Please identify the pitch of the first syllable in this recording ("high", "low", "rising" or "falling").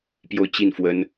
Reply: falling